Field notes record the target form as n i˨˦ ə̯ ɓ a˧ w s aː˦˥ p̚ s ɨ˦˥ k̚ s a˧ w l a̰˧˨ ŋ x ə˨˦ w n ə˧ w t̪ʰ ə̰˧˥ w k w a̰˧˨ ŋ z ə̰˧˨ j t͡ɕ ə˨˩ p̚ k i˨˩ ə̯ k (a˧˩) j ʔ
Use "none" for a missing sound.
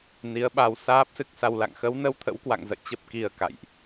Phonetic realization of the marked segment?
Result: a̰˧˨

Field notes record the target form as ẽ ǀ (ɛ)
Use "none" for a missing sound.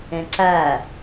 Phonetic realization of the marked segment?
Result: æ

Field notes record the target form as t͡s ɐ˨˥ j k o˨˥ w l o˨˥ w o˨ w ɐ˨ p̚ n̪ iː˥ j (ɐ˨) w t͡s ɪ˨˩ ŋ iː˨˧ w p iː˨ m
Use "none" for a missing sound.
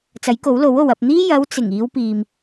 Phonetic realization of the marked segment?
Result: ɐ˨˧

